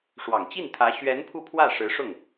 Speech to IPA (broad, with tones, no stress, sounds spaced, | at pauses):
ʂ w ɑ˨˩ ŋ t͡ɕ i˥˩ n t̪ʰ ä˧˥ ɕ ɥ ɛ˧˥ n pʰ u˥˧ pʰ w ä˥˩ ʂ ɻ̩˧˥ ʂ ʊ˥˩ ŋ